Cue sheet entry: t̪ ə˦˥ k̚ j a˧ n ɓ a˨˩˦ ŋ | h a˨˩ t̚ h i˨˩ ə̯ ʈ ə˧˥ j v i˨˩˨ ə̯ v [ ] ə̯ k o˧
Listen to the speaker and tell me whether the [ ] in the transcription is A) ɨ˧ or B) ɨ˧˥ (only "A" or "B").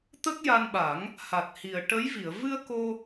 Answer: A